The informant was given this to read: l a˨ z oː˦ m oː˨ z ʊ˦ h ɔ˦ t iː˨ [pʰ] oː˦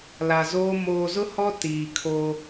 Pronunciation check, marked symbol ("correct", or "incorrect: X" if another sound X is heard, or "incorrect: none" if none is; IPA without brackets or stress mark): incorrect: kʰ